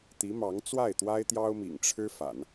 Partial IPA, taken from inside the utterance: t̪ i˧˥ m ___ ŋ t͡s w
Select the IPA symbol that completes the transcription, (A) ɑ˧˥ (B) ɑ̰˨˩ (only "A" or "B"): A